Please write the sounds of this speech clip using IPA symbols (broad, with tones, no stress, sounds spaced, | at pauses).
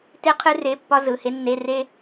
t e˥ qʰ ɨ˥ r e˧˥˧ pː ɒ˥ z ɯ˩˧˩ h e˥ nː e˧˥˧ r e˥